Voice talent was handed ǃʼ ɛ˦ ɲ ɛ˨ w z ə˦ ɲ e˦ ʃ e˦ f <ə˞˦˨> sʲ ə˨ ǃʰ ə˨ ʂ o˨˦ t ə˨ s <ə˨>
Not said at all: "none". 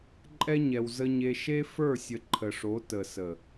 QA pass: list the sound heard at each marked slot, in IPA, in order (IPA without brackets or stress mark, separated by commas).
ə˞˦˨, ə˨